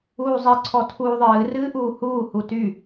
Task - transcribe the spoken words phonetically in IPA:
uː zˤ ɪ ǀʰ ɔ tʰ uː ðˤ ɨː r ɨː ʔ uː h uː h u t y

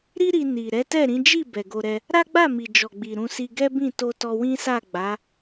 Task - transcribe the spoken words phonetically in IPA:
ɾ i˦ ɾ i˧ n i˨ ɾ ɛ˨˦ t ɛ˦˨ ɾ ĩ˨˦ d͡ʒ i˦˨ b ɛ˨ ɡ o˧ ɾ ɛ˧ | ɾ a˦ ɡ͡b a˦˨ m i˨ d͡ʒ ɔ˨ ɡ͡b i˨ ɾ ũ˧ s i˧ ɡ ɛ˦ b ĩ˦˨ t o˧ t ɔ˧ w ĩ˦ s a˦˨ ɡ͡b a˨˦

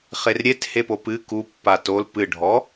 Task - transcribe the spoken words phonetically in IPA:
χ e r ɾʲ e t h e p o p ɨ k u pː a t o l p ɨ ɖʱ ɔ

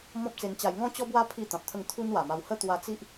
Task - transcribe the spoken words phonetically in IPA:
m ɔ̃˦ p̚ t͡s e˧ n t͡ɕ a˧ j ŋ ɔ̃˦ t͡ɕ ɔ˦ b w a˦ pʰ i˥˧ t̪ ã˨ p̚ t̪ʰ ə˥˧ ŋ t̪ʰ u˦ n w a˨˩ m a˧ w h ə˦ t̪ w a˧ t͡s i˦ ʔ

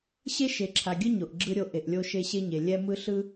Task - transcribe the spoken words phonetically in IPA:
ɕ e˦ ʃ e˨ ǁʰ a˨ ɡʲ ɯ˦ ɲ o˨ ʔ ɡ͡ǁ ɯ˦ ɾʲ o˦ ʔ e˨ ʔ lʲ o˦ ʃ e˦ ɕ e˦ ɲ e˨ lʲ ɛ˦ m ɯ˦ ɬ ɯ˦

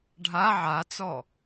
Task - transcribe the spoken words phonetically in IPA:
ɖʱ a ʕ a t͡s ɔ

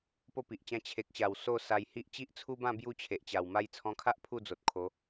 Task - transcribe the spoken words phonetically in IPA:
p o˥˧ p i˨ ʔ t͡ɕ ã˦ t͡ɕʰ e˨ k̚ ɕ a˨˩ w s o˥˧ s a˧ j h i˦ ʔ t͡ɕ i˦ ʔ t͡sʰ u˦ b ã˥˧ b j u˥˧ t͡ɕʰ e˨ ʔ t͡ɕ a˨˩ w m a˥˧ j t͡sʰ ɔ̃˧ kʰ a˦ ʔ pʰ u˥˧ d͡z o˨ t̚ kʰ o˨˦

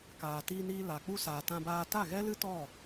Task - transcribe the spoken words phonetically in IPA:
k aː˨ t iː˧ n iː˧ l a˨ k͡p u˧ s aː˨ t ã˧ b aː˧ t a˦˨ ɣ ɛ˦ l ɨ˦ t ɔ˦˨

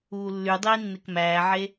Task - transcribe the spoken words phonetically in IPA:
uː lː y dˤ iː nː e k m æː ʕ e

